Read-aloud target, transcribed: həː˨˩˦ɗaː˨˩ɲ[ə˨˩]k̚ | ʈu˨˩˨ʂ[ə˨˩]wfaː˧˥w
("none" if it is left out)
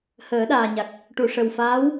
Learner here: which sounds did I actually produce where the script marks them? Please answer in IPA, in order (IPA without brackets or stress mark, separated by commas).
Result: a˨˩, ə˨˩